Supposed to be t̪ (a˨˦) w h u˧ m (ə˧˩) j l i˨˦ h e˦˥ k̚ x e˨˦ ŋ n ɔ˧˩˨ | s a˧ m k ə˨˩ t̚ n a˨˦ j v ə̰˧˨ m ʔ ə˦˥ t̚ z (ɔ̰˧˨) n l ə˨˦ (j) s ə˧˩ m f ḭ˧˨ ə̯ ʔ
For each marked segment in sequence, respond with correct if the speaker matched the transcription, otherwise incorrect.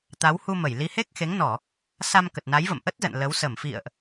correct, correct, incorrect: ə̰˧˨, incorrect: w

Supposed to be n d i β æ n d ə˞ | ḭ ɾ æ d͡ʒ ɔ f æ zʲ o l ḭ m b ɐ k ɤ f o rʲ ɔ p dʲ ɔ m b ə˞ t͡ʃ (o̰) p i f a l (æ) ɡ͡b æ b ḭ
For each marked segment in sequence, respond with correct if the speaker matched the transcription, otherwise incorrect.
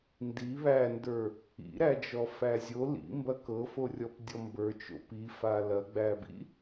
correct, incorrect: ɐ

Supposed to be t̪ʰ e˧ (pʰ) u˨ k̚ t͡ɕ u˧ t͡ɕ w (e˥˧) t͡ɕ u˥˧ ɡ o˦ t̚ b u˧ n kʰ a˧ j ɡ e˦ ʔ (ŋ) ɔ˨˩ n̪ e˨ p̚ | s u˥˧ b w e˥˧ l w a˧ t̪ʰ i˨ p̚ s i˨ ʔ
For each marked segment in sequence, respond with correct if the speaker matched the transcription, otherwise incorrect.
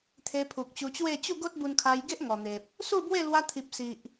correct, correct, correct

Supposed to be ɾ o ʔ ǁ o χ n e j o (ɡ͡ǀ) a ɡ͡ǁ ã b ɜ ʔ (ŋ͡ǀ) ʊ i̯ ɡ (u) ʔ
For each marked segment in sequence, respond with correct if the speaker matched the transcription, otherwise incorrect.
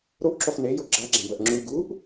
incorrect: ɡ͡ǁ, incorrect: ŋ͡ǁ, correct

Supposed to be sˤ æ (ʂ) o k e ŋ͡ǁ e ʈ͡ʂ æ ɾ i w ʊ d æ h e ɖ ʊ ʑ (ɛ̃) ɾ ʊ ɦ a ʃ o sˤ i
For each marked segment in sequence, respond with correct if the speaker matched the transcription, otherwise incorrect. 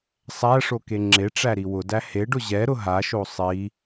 correct, incorrect: ɛ

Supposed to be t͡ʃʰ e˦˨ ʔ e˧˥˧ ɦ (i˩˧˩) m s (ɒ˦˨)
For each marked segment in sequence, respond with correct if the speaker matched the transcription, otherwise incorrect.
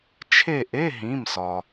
incorrect: ĩ˩˧˩, incorrect: ɒ˩

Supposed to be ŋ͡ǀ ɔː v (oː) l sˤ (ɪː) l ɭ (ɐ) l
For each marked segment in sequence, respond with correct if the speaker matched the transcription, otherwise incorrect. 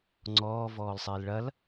incorrect: ɔː, correct, correct

